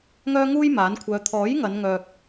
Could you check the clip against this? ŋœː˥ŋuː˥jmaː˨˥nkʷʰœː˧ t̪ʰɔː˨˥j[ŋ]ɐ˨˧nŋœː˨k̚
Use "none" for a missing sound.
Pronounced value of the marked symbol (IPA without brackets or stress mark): ŋ